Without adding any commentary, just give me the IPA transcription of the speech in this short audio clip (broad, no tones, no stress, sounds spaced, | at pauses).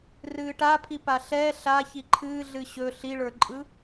r ɨː ʈ a pʰ i p a ɬ ɛː ɬ a ç i ǃʰ ɨː ɮ ɨ ɕ ɵ ɬ i ɭ ə˞ ǃʼ ɯ